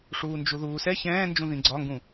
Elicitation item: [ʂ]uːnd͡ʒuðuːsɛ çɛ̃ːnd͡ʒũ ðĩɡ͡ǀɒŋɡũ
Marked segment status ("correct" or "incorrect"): correct